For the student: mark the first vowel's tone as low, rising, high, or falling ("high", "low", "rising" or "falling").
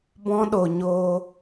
high